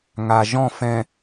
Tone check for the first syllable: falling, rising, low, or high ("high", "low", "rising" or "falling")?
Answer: low